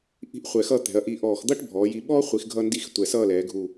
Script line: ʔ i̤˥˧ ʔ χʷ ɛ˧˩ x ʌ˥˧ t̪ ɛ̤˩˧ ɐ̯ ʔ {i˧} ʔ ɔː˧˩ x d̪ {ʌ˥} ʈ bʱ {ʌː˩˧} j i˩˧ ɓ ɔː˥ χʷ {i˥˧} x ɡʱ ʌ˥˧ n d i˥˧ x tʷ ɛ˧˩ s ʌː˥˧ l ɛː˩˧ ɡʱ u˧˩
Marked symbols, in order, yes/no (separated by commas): yes, yes, no, no